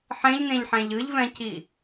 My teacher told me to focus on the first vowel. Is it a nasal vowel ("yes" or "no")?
yes